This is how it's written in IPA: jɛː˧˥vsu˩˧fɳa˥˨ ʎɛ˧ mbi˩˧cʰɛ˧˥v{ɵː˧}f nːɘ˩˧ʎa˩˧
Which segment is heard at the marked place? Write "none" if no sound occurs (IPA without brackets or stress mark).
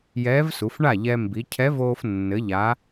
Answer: oː˧